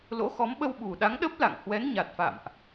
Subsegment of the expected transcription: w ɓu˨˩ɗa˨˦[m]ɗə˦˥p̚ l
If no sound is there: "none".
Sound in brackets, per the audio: ŋ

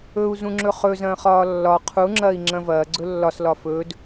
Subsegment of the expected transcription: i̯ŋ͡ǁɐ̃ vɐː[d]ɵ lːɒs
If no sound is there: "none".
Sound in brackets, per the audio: ɡ͡ǀ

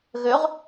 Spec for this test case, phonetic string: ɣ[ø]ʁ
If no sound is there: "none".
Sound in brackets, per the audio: ø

